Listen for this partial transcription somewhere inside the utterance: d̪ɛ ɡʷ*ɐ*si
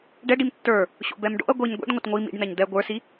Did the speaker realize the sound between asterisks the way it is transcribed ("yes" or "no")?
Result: no